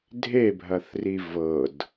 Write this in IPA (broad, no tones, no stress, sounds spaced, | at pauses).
dʱ e bʱ ɐ θ r i v ɤ d